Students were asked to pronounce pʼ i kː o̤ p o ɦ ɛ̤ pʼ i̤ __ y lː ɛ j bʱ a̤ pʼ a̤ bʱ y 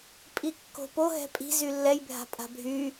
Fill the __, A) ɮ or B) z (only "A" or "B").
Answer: B